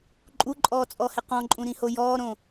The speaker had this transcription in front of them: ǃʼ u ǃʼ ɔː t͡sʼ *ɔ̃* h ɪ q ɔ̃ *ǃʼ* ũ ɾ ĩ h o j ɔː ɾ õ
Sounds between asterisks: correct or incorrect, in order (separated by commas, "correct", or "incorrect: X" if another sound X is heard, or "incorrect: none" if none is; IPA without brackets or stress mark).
incorrect: ɔ, correct